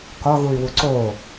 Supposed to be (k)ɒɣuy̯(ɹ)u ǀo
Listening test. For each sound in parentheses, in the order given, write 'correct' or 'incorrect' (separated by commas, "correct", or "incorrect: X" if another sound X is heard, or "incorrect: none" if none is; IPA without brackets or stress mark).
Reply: correct, incorrect: w